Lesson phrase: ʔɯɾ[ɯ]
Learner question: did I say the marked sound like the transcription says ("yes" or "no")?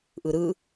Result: yes